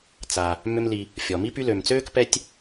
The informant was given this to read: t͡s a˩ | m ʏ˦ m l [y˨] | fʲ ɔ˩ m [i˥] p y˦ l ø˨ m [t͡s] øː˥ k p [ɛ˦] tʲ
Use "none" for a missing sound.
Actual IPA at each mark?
i˨, i˥, t͡s, ɛ˦

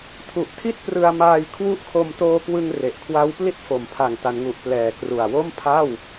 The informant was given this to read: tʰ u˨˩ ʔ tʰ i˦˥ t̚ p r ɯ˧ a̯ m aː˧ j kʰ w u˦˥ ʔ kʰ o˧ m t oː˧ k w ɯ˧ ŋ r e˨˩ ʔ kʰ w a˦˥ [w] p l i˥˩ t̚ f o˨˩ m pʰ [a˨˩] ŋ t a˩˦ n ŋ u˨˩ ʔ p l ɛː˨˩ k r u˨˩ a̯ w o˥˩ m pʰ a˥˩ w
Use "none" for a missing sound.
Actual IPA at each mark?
w, a˨˩

